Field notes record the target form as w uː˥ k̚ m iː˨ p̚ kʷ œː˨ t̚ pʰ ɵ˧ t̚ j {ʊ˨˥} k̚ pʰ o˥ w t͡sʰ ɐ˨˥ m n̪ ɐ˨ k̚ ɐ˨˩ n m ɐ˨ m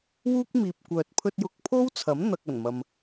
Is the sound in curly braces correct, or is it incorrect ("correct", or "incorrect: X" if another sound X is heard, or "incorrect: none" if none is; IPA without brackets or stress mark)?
correct